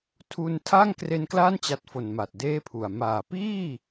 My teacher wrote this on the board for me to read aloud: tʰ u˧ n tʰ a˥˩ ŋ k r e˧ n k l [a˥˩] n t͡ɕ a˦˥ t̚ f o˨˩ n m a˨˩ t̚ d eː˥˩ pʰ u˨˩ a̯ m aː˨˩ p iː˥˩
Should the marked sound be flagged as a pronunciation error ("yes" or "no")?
no